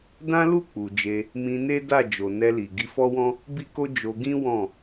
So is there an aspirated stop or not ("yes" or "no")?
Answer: no